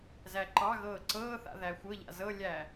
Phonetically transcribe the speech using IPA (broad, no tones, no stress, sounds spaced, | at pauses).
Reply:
z æ ǃ ɑ ɣ ɤː ǀ ɤː θ a̰ ð æ xʷ ɤ ʎ a̰ z ɤ lʲ æ